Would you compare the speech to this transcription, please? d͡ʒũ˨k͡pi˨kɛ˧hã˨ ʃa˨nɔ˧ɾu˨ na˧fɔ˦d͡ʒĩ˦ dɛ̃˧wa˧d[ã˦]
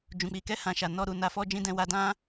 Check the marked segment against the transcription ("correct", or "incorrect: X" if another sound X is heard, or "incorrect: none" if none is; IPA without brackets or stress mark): correct